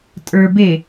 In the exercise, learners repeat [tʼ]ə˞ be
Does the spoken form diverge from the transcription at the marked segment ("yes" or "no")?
no